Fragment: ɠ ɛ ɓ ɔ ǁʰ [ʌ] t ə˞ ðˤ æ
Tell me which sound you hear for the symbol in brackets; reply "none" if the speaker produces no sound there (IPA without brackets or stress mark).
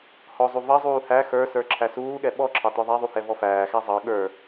ɑ